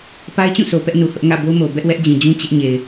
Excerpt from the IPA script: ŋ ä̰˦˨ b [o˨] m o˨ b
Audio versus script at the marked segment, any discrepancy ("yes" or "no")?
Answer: yes